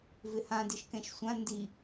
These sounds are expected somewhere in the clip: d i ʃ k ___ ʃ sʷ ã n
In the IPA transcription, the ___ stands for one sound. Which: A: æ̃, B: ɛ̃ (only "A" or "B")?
B